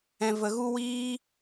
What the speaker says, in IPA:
ɛ̃˨ v ə˨ ɣ u˦ w iː˦

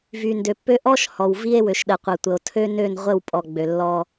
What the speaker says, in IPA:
v y˨ n d ø˨ pː ø˦ ʔ ɔ˦ ʃ h ɔ˨ w v i˦ e̯ w ø˨ ʃ ɗ ə˨ qʷ ə˨ tʷ ə˨ o̯ tʰ ø˦ n ø˦˨ n ʁʷ ə˦˨ w pʼ ɔ˨ ɡ͡b ø˨ lː ɔ˦

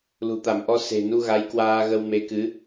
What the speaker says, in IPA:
l ṳ˨˩ t̪ a˧˩ m ʔ ɔ˧ s e̤˨˩ n u˧ ɣ a˨˦ j k w aː˧ ɣ ə˧ w m e˨˦ k ɨ˨˦

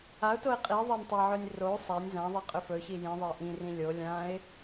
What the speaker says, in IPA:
a ʊ̯ t o ɪ̯ qʼ i ðˤ ɜ nʲ tˤ a ʕ ɵ nʲ r o sˤ a nʲ z ã ðˤ i qʼ ʏ f ɵ ç i j ĩ ðˤ ɜ ɪ̯ ʔ ĩ r ĩ lʲ o lʲ ã ɪ̯

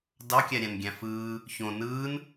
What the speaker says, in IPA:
d ɑ kʲ æ ɾʲ æ̃ n ɡʲ æ̃ f ɯː | ç õ n ɯː n

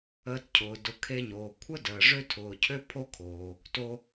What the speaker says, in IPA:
əː˧ t cʰ ʊː˩ d ʊ˩ kʰ e˧ ɲ oː˩ kʷʰ ə˥ d əː˩ ʐ ø˥ tʰ ʊː˩ cʰ ø˥ pʰ o˥ kʰ oː˩ | t o˧

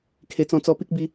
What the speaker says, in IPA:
kʰ e˨˩ t͡s ɔ̃˧ t͡s ɔ˧ p i˦ k̚ b i˧

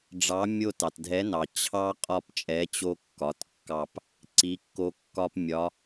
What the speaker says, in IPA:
ɖ͡ʐ ɑ˨˥ mʲ o˦˨ t ɑ˩ t dʱ ɛ˨˥ n ɑ˩ t͡ɕʰ ɑ˦ qʼ ɒ˦˨ p t͡ʃʼ ɛ˨˥ t͡ɕ o˦ kː ɒ˩˧˩ t kː ɑ˦˨ p | ǀ i˨˥ kː o˦ kː ɒ˦ p mʲ ɒ˨˥

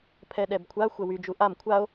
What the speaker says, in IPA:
pʰ ɛ ɗ ɛ b kʷʰ a xʷ ɛ w y d͡ʒ u ʔ a m kʷʰ a o̯

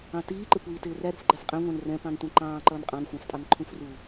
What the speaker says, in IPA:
ɑ̃ t iː ǃ ɪ kʷ iː t ɪː r æ ɾ ṳ f ɡ͡ǃ æ f qʼ ɛ̃ ŋʷ æ̃ n r ɛ̃ p ɑ̃ n tʷ ɛ̃ ǃ ɑ̃ː ǃ ʌː n qʼ ɑ̃ n xʷ ɑ̃ f tʼ ɑ n ǃʰ ũ f r u

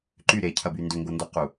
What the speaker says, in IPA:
ǃ y ɾ e cʰ ɐ b y n d ʏ ŋ ɡ o n d o q u

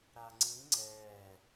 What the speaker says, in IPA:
ɾ a ŋ͡ǀ ĩ ŋ͡ǀ ɛ

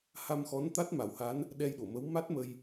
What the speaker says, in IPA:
h a˧ m x ɔ˧˥ n t̪ a˦˥ t̚ m a˨˩˦ w h a˧˥ n | ɗ ɛ˧ j ɗ o˨˩˨ m ə˧˥ w m a˦˥ t̚ m ə˧ j

